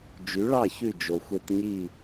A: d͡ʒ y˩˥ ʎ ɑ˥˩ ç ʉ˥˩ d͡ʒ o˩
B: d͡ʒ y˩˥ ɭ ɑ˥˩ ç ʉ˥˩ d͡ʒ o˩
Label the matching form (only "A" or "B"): B